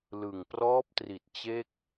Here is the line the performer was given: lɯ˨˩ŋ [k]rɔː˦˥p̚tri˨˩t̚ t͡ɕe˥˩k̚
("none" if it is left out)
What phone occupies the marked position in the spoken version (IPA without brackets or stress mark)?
p